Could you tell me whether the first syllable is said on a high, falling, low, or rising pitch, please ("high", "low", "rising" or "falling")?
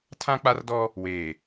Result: high